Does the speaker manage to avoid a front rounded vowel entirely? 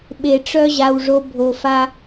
no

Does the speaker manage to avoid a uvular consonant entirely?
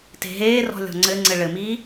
yes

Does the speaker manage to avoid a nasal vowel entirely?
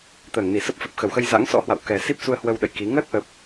yes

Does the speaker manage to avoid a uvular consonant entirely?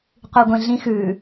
no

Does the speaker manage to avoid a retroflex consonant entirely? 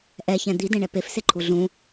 no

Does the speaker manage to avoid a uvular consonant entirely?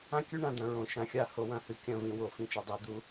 yes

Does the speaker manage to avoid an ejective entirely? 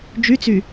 yes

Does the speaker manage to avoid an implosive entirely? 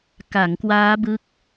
yes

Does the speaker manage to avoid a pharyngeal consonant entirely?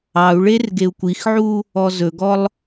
no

